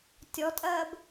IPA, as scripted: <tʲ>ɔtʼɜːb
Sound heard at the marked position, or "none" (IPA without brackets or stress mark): tʲ